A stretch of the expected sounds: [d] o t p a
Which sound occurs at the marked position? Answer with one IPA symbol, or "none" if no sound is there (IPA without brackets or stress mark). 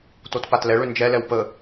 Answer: t